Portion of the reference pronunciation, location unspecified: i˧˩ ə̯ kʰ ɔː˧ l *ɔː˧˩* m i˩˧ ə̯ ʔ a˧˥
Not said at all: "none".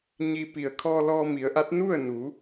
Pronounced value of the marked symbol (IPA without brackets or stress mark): ɔː˧